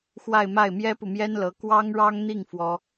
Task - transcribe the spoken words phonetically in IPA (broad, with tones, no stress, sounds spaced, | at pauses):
x w a˥˧ ɪ̯ m a˥˩ ɪ̯ m j ɛ˥ p u˨ m j ɛ˥ n l ɤ˧˥ k w ɑ˥ ŋ ɻ ɑ˥ ŋ n̪ i˥˩ ŋ f w ɔ˥